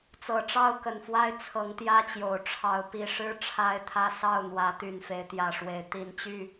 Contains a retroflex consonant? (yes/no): yes